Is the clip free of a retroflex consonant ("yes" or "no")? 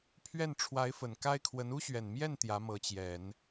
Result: no